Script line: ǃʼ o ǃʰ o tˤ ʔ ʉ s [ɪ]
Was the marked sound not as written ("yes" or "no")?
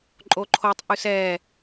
yes